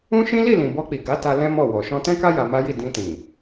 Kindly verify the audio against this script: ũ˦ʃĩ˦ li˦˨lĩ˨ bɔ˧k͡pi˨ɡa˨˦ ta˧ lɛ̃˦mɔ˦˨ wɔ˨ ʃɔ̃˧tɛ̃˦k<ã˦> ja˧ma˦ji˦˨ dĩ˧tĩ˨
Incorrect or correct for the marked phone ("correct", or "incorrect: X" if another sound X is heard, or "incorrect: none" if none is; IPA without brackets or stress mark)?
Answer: incorrect: a˦